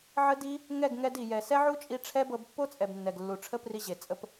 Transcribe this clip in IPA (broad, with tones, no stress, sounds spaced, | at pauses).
ʕ ə˦ d i˦ | ŋ ɛ˦˨ ɡ ŋ ɛ˧ d i˨ j ɛ˨ s ɛ˦ ʕ u˦ t͡ʃʼ i˧ ʈ͡ʂʰ ɛ˦ b ɤ˧ b pː o˦ t͡sʼ ɛ˨ b nː ɛ˨ ɡ lː u˨ ʈ͡ʂʰ ə˦ p r i˧ ʑ e˨ t͡sʼ ə˦ p